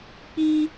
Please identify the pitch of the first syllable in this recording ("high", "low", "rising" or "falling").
high